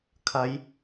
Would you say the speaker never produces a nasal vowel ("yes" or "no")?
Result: yes